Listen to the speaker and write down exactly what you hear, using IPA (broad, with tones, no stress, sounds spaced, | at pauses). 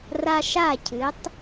r a˧ ʃ a˦˨ cʰ ɨ˨˦ tˤ